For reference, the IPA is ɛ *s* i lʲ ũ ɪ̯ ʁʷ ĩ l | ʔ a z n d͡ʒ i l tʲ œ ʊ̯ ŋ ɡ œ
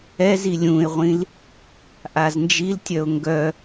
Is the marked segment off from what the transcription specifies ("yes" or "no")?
yes